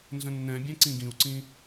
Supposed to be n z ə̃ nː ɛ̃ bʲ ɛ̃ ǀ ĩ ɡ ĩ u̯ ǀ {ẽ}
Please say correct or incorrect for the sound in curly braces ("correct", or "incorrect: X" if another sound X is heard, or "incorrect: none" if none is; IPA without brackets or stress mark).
incorrect: ĩ